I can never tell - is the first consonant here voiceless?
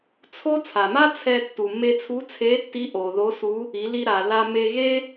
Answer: yes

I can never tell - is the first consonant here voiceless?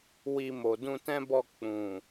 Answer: no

